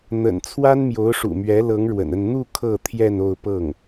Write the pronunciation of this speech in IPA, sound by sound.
n̪ ə̰˨˩ n t͡sʰ w a˥ n m j o˧˥ ʊ̯ ʂ ṵ˨˩ m ɥ ɛ˧˥ l ɤ˧˥ ŋ ɻ w ə̰˨˩ n ə˥˧ n n̪ u˥˧ kʰ ɤ˥˧ t̪ʰ j ɛ˥˧ n o˥˧ ʊ̯ p ɤ˥˩ ŋ

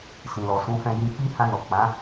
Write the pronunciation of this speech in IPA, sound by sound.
s ĩ˨ l ɔ˨ s ũ˨˦ f ɛ̃˧ j ĩ˧ k͡p i˦ h ã˧ n ɔ˨ k͡p ã˨˦

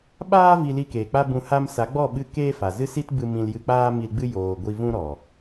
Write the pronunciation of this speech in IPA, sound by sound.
ɓ aː˦ v i˧ l i˧ k eː˨ k͡p a˦ b ũ˧ h a˧ m s a˨˦ ɡ͡b ɔ˦˨ ɓ ɨ˧ k eː˦ f a˨ z ɨ˦ s i˦ t b ɨ˧ m ĩ˧ l j ɨ˧ k͡p aː˦ m i˧ l ɡ͡b ɨ˦ j oː˨ ɡʷ i˧ v ũ˦ ɾ ɔ˨

